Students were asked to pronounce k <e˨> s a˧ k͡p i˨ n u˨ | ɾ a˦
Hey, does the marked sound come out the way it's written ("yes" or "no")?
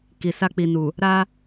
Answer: no